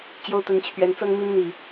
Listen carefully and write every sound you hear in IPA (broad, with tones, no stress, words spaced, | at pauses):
t͡ɕjo˦ʊ̯t̪ə˨˦nt͡ɕʰɥɛ˨˦n t͡sɤ˦ŋmi˦nn̪i˨˩